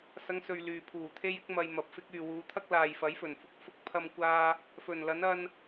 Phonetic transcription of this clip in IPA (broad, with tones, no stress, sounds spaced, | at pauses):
s ɐ˨˧ ŋ s ɵ˨ ɥ l yː˨ pʰ uː˨˩ t̪ʰ e˥ j ɪ˥ k̚ m ɐ˧ j m ɐ˨ p̚ f ɪ˥ k̚ yː˨ w uː˨˧ t̪ʰ ɐ˥ k̚ l aː˨ j f ɐ˨˥ j f ɵ˨˩ n f ʊ˧ k̚ f ʊ˥ k̚ pʰ ɐ˥ m kʷ aː˥ | f ɵ˨˩ n l ɐ˨˥ n ɐ˧ n